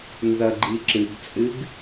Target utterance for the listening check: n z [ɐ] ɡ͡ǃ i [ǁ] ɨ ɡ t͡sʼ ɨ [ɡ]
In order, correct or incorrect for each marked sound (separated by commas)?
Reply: correct, correct, correct